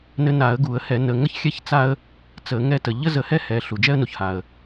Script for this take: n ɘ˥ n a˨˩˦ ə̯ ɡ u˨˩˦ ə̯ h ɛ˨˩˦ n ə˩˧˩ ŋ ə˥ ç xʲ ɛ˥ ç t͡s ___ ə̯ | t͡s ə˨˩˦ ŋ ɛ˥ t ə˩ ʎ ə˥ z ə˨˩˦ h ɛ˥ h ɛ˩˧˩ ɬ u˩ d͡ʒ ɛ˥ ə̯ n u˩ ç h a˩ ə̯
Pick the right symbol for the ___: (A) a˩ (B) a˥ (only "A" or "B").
B